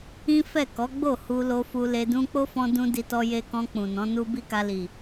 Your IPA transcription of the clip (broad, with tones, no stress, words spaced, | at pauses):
ĩ˦fɛ˦˨ kɔ˨˦ɡ͡bo˦˨ hu˧lo˧ fu˧le˧dũ˦ k͡po˦fɔ̃˧dũ˧ di˧tɔ˧je˧kɔ̃˧ k͡pũ˨nɔ̃˨˦nu˦ bi˦ka˧li˨